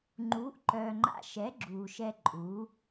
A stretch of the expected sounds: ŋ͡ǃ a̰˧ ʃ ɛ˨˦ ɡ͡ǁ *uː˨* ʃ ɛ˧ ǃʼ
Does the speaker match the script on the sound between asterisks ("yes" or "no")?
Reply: yes